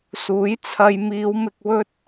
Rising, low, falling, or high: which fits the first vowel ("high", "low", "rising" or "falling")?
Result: rising